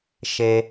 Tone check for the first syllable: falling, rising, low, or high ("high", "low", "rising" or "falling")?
high